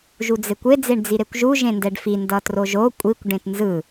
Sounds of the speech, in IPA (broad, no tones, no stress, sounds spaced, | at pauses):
ʒ u d͡z e kʷ e d͡z e ɳ d͡z i ɾ e kʷ ʒ u ʒ ẽ n d ɛ ɖ f i n d ʌ t r o ʒ o kʷʼ i kʷ ɖ ẽ t n z ɯ